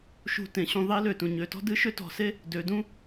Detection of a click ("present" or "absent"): absent